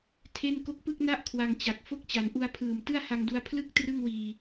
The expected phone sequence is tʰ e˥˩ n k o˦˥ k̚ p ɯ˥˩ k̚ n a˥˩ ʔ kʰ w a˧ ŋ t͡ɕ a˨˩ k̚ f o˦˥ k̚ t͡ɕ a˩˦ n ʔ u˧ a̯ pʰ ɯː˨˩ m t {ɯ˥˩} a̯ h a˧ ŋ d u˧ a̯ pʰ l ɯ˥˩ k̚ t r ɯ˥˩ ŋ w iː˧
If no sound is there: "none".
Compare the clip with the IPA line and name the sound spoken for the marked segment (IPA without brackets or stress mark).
ɯ˥˩